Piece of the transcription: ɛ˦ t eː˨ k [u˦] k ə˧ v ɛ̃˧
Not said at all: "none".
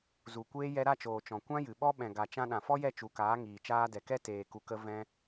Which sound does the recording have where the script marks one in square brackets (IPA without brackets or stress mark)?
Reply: u˨